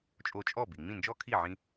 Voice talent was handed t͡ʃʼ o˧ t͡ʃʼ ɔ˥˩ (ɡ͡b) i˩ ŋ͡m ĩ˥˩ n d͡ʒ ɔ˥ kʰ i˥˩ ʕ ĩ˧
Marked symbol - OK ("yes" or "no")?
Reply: no